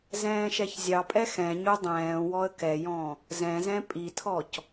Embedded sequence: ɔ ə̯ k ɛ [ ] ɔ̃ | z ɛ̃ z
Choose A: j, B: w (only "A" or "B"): A